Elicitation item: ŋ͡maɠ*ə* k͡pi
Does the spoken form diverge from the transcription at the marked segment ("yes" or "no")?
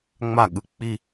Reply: yes